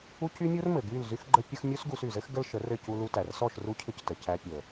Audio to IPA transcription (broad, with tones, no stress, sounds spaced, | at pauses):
u˦ c y˦ mʲ u˦ r m ɘ˨ ɡ y˦˨ l z y˦ x ɡ͡ǃ ə˦ pʲ ə˦ x mʲ u˦ s ɡ u˧ s y˨ z ɘ˦ x ɡ ə˦ l ʃ ə˨˦ r ɘ˦˨ c u˧ l u˧ t æ˨ r s ɔ˦˨ ʃ r u˦ cʰ ɘ˦ c t ə˨ c æ˧ pʲ ə˨